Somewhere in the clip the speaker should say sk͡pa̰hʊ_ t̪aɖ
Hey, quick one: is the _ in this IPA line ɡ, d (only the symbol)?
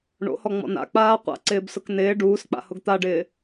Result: ɡ